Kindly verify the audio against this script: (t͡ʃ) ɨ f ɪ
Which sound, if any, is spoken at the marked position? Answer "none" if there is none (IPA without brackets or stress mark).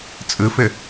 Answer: t͡sʼ